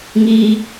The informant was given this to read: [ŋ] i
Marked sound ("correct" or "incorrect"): correct